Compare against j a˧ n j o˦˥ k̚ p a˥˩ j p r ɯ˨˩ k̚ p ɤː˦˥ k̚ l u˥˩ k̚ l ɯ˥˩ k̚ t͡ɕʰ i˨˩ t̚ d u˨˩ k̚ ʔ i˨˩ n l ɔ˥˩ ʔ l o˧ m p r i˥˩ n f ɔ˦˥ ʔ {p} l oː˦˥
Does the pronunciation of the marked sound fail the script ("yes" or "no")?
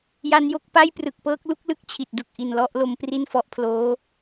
yes